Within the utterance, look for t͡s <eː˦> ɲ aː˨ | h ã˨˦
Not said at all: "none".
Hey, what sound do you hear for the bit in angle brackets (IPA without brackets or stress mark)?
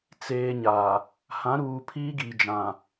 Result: eː˨